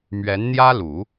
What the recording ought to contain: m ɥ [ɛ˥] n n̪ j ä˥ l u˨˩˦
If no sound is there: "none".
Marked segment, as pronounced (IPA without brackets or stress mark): ɛ˧˥